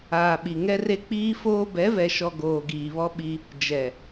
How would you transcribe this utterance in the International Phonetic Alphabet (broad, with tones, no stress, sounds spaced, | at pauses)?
aː˨ ɓ i˨ ŋ ɛ˦ r e˦ k͡p iː˦ f oː˦ b ɛ˨˦ v ɛ˨ ʃ ɔ˨ ɡ oː˨ ɡ iː˨ β ɔ˦ ɓ i˦ | d͡ʒ ɛ˨